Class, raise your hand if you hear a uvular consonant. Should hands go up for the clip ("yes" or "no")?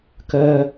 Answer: no